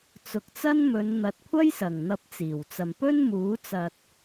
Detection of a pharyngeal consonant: absent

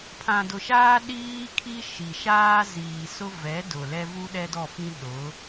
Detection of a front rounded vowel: absent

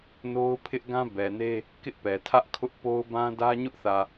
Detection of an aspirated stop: present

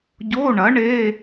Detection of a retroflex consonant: present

